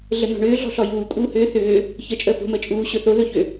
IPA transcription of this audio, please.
ɮ ə n̪ ɔ̤ ɳ ʏː ɮ ɔ̤ ɬ ɔ j uː kʼ uː h ʏː θ ʏː | ç ə t͡ʃʼ əː p o̤ m əː t͡ʃʼ uː ɕ ɵ θ o ð ɵ ç ʏ

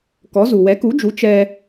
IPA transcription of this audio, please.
k ɔ˩˥ z u˩ w ɛ˩˥ k u˩˥ d͡ʒ u˩˥ t͡ʃ ɛ˧

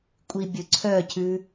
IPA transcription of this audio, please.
kʷʼ i bʲ ɵ ǀʰ œ cʰ ʉ

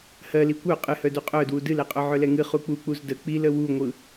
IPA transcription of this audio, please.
h ɜ l i kʷ œ qʼ ɨ h œ d u qʼ œ d w u d ɨ l ɛ qʼ œ ʕ œ l ɛ ŋ ɨ χ u k͡p u k͡p u z d ə k͡p i l ə w u ŋʷ ɯ

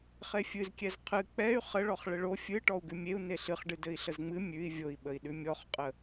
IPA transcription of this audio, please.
χ e fʲ ɨ z kʲ ɛ z qʰ ɨ k͡p ɛ y̯ χ ə ɭ ɔ χ ɭ ɘ ɭ o fʲ ɨ ʈ ɔ u̯ ɡ ʉ mʲ e u̯ n e ɬ ɨ χ ɖ ɨ d ɘ i̯ ɬ ə z ŋ͡m ɨ mʲ ʉ i̯ vʲ o i̯ ɓ ə i̯ ɗ ʉ mʲ ɔ χ qʼ ə

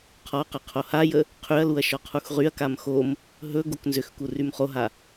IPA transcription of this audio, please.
qʰ ɔ q ə qʰ o h a j ə | qʰ y ɐ̯ l u ɐ̯ ʃ ɔ qʰ u x ʁ y ɐ̯ k a m x o m | ɦ ɵ ɡ o k n z ʏ x k u r y m χ o ɦ a

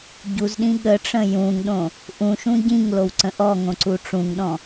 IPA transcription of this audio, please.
ɟ u z ɗ ĩ ɠ ə ʈ͡ʂ ə̃ j ũ ŋ ɗ õ | ʔ ũ ʃ ũ ɟ ĩ ŋ l o w ǀ ə̃ ʔ ɔ ŋ õ ǀ u ʈ͡ʂ ũ ŋ ɗ ɔ̃

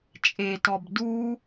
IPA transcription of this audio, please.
t͡ʃʼ e t ɔ b d u

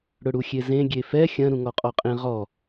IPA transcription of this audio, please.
ɽ ʊ ɽ u xʲ e z ẽ ɡʲ e f ɛ xʲ ɐ̃ ɾ ũ ŋ ɔ qʼ ɔ qʼ ẽ ʁ ɔ

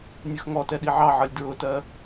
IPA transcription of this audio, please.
nʲ ʊ x ŋ ɔ t ɛ ɗ i ʕ ɑ ʕ ʌ lʲ d ɹ ʊ t ɜ

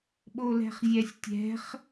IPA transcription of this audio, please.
ɓ o l ɛ̤ χ zʲ ɛ sʲ tʲ ɛ̤ χ

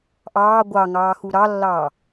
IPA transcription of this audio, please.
ʔ ɑː ɡʷ ɑ ŋ ɑː x u ɾ ɑ lː ɑː

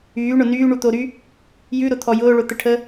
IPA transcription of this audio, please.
yː ɳ ʊ n yː ɳ u t̪ o ɾ y | j ʉ ɾ ʊ t̪ʰ ɔ j ʊː ɭ ʊ t̪ ə ʈʰ ə

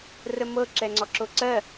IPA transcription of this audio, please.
r ə m ɤ ǁ ɛ ŋ͡ǀ ɔ ǁ o ǀ ɜ

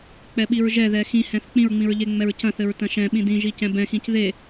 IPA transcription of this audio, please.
k͡p ɛ ɓ i ɹ ʒ ɛ ð ɛ x ĩ h ɛ̃ θ k͡p ĩ ɹ ŋ͡m ĩ ɹ ʎ e ŋ͡m ɛ ɹ c ɐ̃ θ ɘ ɹ t ɐ̃ ʃ ɛ̃ ɓ ĩ d ĩ ʒ i c ɛ̃ b ɛ̃ x ĩ c ð e

